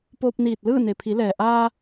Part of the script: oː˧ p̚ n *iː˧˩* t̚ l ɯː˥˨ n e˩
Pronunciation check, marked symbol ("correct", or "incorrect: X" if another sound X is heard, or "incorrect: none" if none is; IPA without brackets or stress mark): correct